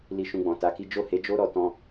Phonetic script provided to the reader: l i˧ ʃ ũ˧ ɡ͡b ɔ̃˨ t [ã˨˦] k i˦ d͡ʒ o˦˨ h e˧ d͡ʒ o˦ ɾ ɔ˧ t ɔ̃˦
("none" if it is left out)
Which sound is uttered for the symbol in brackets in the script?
a˨˦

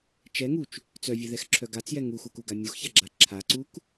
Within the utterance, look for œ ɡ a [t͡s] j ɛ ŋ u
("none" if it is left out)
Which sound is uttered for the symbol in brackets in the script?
t͡s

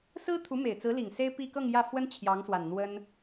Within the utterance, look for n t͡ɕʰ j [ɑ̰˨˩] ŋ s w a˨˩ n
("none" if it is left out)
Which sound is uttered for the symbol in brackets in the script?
ɑ˧˥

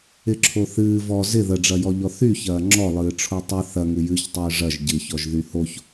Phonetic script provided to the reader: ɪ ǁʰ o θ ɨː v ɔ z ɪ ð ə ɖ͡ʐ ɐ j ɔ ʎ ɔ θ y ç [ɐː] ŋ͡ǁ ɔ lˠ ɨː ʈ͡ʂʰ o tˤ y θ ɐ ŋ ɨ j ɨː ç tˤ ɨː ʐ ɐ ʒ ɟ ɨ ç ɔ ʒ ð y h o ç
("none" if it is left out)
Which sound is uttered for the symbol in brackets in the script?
ɐː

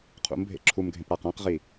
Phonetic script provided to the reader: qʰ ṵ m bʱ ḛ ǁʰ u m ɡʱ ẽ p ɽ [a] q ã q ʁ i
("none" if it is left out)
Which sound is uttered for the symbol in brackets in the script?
a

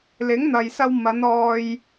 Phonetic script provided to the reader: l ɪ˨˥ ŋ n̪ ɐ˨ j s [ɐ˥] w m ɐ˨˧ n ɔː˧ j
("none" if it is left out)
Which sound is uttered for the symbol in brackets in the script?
ɐ˧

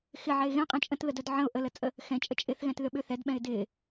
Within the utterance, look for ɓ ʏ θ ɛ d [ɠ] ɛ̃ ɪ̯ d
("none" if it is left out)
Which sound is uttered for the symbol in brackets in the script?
ɓ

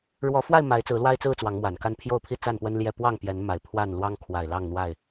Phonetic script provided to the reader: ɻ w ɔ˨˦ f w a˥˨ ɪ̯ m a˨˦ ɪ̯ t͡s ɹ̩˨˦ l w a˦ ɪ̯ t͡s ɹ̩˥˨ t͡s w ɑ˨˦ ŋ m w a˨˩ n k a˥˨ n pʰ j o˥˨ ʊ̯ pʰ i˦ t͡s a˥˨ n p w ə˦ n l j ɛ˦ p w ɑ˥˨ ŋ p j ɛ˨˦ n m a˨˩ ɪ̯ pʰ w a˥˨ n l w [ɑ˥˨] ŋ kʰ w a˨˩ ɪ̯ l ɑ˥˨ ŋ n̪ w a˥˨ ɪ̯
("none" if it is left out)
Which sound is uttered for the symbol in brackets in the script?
ɑ˦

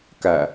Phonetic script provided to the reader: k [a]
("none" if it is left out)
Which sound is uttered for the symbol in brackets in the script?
æ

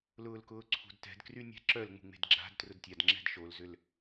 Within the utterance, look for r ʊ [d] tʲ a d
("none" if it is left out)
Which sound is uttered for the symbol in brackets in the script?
d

